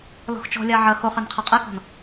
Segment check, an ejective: present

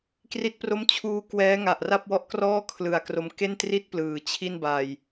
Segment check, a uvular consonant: absent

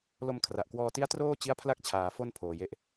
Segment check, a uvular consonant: absent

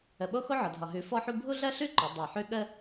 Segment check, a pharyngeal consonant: present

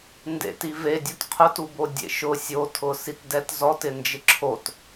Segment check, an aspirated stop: present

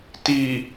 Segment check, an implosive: absent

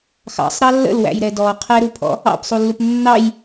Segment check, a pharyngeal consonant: absent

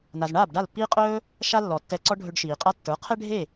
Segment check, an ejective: present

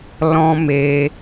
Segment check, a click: absent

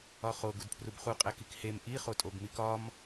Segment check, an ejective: present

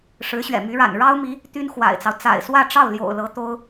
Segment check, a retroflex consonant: present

